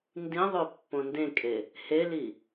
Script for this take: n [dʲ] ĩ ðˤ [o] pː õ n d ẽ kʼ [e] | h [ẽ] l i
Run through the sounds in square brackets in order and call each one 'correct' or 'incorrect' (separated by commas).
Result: incorrect, correct, correct, incorrect